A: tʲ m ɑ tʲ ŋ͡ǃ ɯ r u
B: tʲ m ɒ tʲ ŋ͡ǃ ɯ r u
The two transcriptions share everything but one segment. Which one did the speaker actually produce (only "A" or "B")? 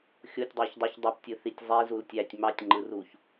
A